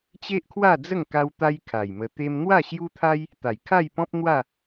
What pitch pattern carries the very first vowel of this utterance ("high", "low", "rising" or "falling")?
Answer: high